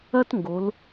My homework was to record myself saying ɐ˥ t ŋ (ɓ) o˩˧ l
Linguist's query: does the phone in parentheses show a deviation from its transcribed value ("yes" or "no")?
yes